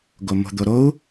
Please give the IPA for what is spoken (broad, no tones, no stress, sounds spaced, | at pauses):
ɡ o m o̤ d̪ o ɾ o u̯